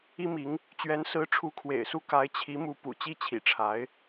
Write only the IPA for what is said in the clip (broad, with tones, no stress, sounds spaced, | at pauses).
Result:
i˥ m i˧˥ ŋ | t͡ɕ ɥ ɛ˧˥ n s ɹ̩˧˥ ʈ͡ʂʰ u˧˥ kʰ w ḛ˨˩ ɪ̯ s u˥˩ k a˧˥ ɪ̯ t͡ɕʰ i˧˥ m u˧˥ p ṵ˨˩ t͡ɕ i˥˩ t͡ɕʰ ḭ˨˩ ʈ͡ʂʰ a˧˥ ɪ̯